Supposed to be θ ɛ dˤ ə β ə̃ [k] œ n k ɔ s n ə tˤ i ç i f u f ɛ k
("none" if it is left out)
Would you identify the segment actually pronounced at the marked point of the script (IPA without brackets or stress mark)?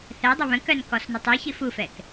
k